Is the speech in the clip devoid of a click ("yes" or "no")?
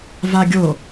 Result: yes